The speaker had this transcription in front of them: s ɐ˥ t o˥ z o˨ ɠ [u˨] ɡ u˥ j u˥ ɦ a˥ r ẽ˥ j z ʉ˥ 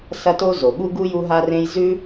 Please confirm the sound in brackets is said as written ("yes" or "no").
no